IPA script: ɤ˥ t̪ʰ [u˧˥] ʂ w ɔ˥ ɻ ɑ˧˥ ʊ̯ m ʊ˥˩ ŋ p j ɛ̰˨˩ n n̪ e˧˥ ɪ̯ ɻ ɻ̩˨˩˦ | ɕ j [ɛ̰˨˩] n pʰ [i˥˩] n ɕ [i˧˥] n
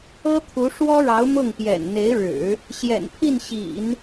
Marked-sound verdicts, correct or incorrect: correct, correct, correct, incorrect

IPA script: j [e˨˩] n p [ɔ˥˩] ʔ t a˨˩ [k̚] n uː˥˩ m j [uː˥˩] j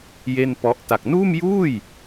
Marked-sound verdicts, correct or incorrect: incorrect, incorrect, correct, correct

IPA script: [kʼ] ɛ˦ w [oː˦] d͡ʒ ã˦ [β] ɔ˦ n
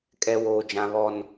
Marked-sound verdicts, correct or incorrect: correct, correct, correct

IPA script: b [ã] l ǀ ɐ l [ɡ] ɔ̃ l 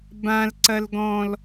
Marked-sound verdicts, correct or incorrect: correct, correct

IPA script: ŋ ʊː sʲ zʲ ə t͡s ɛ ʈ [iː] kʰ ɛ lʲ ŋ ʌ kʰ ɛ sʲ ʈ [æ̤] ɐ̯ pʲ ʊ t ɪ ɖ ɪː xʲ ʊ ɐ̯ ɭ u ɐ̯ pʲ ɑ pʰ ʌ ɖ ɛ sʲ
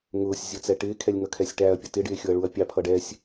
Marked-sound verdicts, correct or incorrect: incorrect, incorrect

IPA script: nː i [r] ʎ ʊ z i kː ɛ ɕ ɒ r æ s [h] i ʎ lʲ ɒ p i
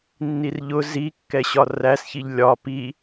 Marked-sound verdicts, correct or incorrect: correct, incorrect

